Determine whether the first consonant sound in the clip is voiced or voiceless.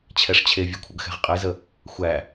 voiceless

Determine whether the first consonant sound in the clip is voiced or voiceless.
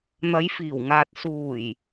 voiced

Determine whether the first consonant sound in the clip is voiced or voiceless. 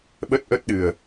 voiced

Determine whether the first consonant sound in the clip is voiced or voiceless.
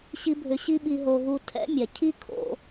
voiceless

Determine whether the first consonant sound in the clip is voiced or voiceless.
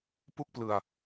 voiceless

